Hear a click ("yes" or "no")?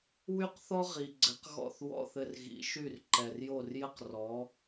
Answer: yes